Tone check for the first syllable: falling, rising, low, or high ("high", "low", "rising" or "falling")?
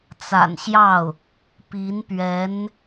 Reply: low